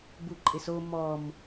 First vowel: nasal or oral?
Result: oral